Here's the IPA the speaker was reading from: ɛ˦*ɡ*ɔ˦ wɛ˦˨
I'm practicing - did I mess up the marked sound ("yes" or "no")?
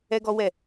no